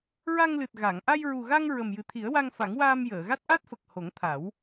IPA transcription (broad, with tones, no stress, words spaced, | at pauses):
ɹa˧ŋlɨ˨˩t̚ ɣa˨˩˨ŋ ʔa˧jɹu˨˩ɣa˧ŋ ɹə˨˩mjɨ˨˩t̪ʰi˨˩˦ə̯wa˧ŋ fa˨˩˦ŋwaː˧mjəː˨˩˨ɣa˦˥t̚ ʔa˦˥t̚fə˨˩k̚ ho˨˩˦ŋt̪ʰa˨˩˦w